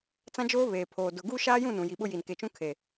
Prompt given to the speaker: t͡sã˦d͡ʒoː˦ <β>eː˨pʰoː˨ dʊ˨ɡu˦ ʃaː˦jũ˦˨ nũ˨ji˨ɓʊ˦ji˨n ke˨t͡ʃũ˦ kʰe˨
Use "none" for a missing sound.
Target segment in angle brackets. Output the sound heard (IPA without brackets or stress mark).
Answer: β